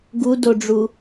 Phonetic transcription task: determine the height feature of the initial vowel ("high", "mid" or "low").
high